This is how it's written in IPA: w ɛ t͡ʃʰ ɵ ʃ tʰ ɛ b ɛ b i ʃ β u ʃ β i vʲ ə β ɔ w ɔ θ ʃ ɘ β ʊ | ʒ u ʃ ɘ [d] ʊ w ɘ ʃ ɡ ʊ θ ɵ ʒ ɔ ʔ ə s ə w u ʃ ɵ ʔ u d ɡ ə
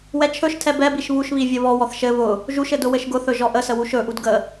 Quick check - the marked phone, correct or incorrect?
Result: correct